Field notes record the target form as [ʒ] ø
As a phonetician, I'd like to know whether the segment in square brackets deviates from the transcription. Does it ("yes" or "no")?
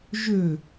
no